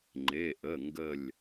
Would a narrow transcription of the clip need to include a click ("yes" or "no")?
yes